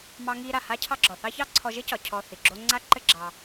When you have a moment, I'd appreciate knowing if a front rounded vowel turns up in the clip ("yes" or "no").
no